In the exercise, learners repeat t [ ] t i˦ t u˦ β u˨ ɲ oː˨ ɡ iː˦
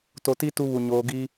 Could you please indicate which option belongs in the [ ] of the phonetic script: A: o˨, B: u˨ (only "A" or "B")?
A